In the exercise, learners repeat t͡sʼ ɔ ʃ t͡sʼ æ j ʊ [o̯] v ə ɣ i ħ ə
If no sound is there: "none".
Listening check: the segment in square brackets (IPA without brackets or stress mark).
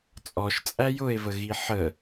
e̯